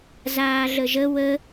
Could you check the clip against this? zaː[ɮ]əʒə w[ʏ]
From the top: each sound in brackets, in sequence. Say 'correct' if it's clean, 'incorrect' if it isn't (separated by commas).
correct, incorrect